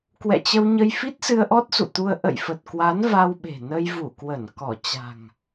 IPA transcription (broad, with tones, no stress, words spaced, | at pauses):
kwɛ̰˧˨t͡ɕə˧wɲə˧j fi˦˥t̚sɨ˧ə̯ʔɔ˦˥t̚ sṵ˧˨t̪u˧ə̯ ʔə̰˧˨jfə˨˩t̚kwa˨˦n va˧wɓe̤˨˩ nə˧jvu˧˩kwə˧˩n kɔ˧˩ t͡ɕa̤˨˩ŋ